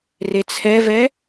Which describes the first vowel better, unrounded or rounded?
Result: unrounded